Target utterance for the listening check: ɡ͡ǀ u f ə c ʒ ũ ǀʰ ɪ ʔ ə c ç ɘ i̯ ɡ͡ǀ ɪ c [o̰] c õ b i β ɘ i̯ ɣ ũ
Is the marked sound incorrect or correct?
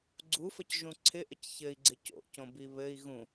correct